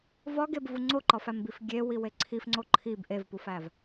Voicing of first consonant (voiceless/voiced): voiced